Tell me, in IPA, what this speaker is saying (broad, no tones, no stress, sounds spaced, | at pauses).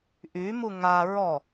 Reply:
ʔ y m u ŋ a ɹ ɔ